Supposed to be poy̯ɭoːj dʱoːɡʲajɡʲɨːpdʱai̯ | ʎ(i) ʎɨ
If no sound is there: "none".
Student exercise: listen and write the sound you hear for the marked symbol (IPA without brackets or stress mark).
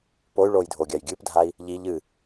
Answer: i